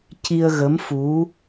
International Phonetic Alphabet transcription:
c i˧ ə̯ ɣ ə˧˥ m f u˧˥

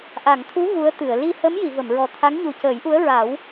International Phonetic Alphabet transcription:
ʔ a˨˩˨ ŋ t̪ʰ u˧˥ ɣ u˧˥ ə̯ t̪ ɨ˨˩˨ ə̯ l i˧ h ə˧˥ m j i˨˩˨ v ə˨˩˨ m ɹ ɔ˨˩ t̪ʰ a˧˥ ŋ ɲ u˨˩ c əː˨˩˦ j ʔ u˧˥ ə̯ ɹ a˨˩˦ w

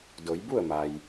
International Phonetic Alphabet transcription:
d o˩˧ j b u˥˨ ə̯ m a˩ j

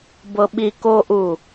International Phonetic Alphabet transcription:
b ɤ ɓ i k o ʔ u

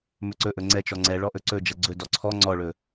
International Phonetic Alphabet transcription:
m ɵ ǀ ɵ ʔ ɵ ŋ͡ǀ ɛ t͡ʃ ɔ ŋ͡ǀ ɛ ɭ ɔ ʔ ɵ ǀ ɵ d͡ʒ ɐ ɡ͡ǀ ɵ d ɔ ǀʰ ɔ ŋ͡ǀ ɔ ɭ ɵ

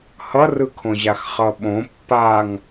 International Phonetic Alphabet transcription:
h ʌ r ɯ kʰ õ ʑ a x χ ʌ ɓ õ pː a ŋ

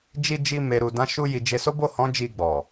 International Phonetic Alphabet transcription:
d͡ʒ i˧ d͡ʒ i˧ m e˨ ɾ u˨ d ã˨˦ ʃ u˧ j i˨ d͡ʒ e˨˦ s o˦ b o˦˨ h ɔ̃˨˦ d͡ʒ i˧ ɡ͡b ɔ˨

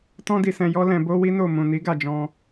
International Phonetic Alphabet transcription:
t ɔ̃˦ d i˧ s ɛ̃˧ j ɔ˦ l ɛ̃˧ b o˦ w i˦ n o˦˨ m ũ˨ n i˨˦ ɡ a˦˨ d͡ʒ ɔ̃˧

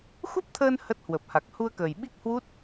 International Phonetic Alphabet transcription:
x u˦˥ p̚ t̪ʰ əː˧ n h ə˦˥ t̚ h w ə˨˩ p̚ h a˨˩ k̚ h u˧ ə̯ k əː˨˩ j ɓ i˦˥ k̚ h w u˦˥ t̚

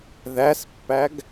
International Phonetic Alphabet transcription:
ð æ s pː æ ɡ

